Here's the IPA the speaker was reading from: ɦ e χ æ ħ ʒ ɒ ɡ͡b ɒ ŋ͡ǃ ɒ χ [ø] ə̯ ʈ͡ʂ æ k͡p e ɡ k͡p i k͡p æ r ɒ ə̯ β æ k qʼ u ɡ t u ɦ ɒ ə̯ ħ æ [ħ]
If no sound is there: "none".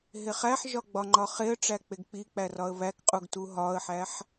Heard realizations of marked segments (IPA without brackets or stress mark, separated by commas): e, ħ